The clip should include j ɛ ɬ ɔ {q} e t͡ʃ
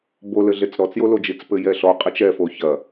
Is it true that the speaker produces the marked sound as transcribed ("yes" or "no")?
no